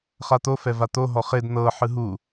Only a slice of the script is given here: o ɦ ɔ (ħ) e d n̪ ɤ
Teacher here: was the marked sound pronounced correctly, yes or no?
no